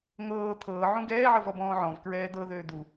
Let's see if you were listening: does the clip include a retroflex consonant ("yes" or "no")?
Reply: no